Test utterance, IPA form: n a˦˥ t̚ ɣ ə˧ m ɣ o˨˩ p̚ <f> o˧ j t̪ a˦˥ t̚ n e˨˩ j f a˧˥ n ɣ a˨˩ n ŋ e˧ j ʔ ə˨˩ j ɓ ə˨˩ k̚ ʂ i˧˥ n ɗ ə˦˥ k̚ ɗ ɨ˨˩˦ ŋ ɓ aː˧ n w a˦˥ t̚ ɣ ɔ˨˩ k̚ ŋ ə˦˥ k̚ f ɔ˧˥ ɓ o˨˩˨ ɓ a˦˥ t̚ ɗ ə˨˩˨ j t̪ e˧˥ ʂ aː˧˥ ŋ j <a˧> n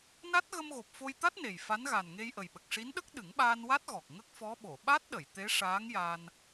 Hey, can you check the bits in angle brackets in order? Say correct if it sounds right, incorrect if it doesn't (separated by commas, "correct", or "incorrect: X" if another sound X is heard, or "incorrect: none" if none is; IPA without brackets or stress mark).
correct, incorrect: aː˧